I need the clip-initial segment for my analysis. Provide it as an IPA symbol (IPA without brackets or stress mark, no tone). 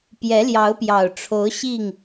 p